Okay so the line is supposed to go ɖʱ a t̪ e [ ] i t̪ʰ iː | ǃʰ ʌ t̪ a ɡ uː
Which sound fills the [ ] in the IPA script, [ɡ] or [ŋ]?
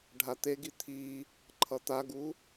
ɡ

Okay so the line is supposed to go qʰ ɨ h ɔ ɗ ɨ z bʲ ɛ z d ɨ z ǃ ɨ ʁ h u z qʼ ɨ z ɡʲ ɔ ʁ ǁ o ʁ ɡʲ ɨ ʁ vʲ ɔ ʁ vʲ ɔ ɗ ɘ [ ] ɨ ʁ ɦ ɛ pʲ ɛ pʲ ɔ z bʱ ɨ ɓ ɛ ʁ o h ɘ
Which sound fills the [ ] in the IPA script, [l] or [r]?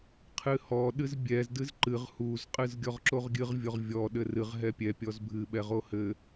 r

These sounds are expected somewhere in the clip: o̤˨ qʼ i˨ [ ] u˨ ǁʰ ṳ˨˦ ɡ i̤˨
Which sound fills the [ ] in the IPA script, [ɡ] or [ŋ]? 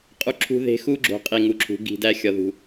ŋ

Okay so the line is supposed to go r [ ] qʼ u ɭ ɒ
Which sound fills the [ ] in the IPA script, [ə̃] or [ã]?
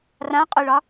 ã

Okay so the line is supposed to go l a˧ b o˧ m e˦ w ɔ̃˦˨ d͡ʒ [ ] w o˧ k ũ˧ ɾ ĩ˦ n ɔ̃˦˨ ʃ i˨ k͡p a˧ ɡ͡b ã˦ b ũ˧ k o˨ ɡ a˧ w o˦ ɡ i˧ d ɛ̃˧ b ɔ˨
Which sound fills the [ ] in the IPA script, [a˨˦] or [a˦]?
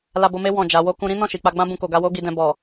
a˨˦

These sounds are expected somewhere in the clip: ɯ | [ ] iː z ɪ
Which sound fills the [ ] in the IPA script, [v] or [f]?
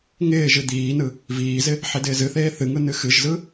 v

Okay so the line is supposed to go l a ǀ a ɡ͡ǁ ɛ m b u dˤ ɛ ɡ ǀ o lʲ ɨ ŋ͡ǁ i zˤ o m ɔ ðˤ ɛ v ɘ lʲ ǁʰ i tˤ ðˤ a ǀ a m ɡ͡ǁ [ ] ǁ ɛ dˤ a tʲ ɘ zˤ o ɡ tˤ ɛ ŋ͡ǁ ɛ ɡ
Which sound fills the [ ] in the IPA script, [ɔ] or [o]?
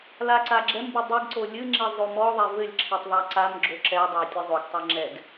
o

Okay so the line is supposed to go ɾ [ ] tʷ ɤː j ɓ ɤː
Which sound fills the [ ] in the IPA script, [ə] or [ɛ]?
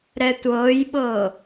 ɛ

